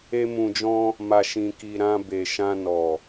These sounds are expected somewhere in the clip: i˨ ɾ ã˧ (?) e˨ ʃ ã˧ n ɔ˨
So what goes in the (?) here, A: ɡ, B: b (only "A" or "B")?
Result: B